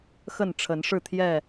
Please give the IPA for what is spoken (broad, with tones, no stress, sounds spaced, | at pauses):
x ə˥˨ n ʈ͡ʂʰ ə˨˦ n ʂ ɻ̩˥˨ t̪ʰ j ɛ˥˨